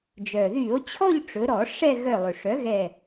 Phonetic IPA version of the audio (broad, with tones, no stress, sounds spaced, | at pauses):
d͡ʒ œ˩ ð y˧˩˧ o̯ t͡ɕʰ ɔ˥˧ ʎ ʈ͡ʂ ɵ˩˧ ɾ ɔ˧˩˧ ʂ ɛ˥˧ ɣ œ˧˩ lˠ ɵ˩ ʂ œ˩˥ ɣ ɛ˧˩